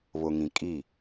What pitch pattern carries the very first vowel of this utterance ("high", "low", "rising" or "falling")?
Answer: low